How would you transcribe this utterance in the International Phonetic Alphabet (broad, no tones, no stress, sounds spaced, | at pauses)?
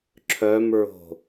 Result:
ǁʰ œ m ɹ o̤